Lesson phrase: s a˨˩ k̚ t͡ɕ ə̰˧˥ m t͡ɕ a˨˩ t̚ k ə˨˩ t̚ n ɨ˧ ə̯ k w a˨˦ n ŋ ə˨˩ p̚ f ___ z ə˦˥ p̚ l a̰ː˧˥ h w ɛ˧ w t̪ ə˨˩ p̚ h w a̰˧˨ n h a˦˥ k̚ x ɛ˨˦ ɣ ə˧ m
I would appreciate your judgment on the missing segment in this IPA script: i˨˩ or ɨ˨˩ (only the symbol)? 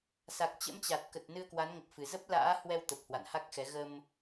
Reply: ɨ˨˩